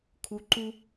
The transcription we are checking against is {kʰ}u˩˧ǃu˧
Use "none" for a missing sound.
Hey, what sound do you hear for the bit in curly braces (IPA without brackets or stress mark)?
kʰ